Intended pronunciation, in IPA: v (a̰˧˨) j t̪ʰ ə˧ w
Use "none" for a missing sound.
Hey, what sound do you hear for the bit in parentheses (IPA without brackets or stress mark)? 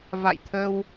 a̰˧˨